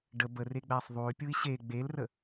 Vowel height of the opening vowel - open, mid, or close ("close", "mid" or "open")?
mid